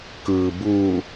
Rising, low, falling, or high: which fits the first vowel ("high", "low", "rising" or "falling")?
low